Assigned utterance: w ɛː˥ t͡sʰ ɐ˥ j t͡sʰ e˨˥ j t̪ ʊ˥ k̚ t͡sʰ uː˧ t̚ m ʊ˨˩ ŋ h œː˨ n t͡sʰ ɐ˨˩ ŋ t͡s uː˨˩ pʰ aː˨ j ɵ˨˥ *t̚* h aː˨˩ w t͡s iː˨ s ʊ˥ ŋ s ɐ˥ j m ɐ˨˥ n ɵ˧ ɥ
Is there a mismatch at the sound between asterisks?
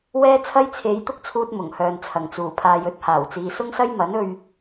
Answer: no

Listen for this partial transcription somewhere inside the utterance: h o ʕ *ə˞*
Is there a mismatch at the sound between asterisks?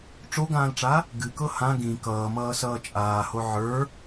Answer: no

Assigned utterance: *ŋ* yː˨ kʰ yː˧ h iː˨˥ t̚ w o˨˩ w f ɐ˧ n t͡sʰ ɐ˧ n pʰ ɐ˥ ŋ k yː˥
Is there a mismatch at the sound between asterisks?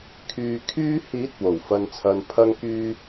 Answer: yes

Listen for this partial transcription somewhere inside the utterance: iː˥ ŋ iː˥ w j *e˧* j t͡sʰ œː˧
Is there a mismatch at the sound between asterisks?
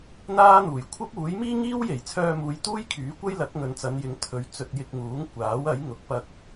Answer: yes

